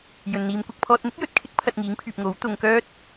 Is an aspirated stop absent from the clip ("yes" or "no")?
no